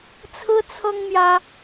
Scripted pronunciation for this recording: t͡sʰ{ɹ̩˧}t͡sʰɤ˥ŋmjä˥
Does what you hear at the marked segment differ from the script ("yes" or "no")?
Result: yes